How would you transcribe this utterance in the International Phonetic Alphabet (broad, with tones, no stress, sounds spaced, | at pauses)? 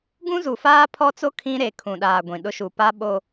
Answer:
ɡ ũ˦ z u˨ f aː˦ pʰ ɔ˦ t͡s o˦ kʰ ĩ˦ ɾ e˨ kʰ ũ˨ ɗ aː˨ ɡʷ ĩ˨ ɗ ʊ˦ ʃ u˨ p a˦ ɓ o˦